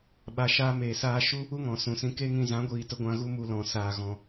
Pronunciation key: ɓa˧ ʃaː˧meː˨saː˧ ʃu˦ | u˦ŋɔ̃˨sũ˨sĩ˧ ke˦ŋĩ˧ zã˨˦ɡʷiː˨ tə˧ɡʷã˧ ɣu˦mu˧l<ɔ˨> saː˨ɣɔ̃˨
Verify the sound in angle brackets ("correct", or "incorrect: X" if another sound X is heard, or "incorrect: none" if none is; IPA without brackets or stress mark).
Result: incorrect: ɔ̃˨